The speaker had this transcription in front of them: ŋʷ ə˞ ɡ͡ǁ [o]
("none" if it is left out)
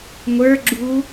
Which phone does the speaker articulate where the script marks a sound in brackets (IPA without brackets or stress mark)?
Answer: u